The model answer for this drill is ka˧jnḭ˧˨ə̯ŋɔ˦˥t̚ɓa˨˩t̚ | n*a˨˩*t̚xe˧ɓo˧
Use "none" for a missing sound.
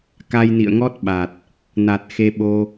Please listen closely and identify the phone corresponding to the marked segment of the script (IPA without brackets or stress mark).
a˨˩